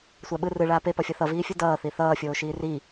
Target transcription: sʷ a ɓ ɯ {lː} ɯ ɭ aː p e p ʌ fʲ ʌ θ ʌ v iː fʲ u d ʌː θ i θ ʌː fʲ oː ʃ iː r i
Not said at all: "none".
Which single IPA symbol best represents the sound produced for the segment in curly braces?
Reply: r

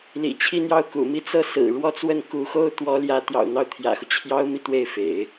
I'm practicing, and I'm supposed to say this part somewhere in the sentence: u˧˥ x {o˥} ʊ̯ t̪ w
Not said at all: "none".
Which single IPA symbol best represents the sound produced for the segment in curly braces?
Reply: o˥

